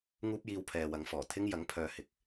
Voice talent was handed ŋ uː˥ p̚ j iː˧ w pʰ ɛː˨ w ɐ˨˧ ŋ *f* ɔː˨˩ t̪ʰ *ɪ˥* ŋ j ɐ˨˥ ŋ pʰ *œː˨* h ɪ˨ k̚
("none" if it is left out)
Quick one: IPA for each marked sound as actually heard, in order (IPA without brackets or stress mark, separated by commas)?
f, ɪ˥, œː˨